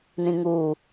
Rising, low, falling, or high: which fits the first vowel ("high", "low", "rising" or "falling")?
high